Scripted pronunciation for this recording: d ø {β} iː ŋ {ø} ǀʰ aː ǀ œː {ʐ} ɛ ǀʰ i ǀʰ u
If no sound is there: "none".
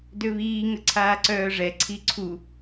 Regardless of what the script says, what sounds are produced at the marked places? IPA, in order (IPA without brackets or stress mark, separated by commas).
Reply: β, ə, ʐ